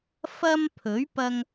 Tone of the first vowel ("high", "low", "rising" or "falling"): high